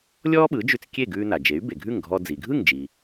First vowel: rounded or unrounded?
rounded